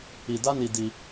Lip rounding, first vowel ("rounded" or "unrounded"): unrounded